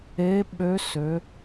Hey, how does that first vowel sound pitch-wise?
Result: rising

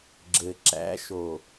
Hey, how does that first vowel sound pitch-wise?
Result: low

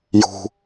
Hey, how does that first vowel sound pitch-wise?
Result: low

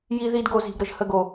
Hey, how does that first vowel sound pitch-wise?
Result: high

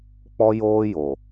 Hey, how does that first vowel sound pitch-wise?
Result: high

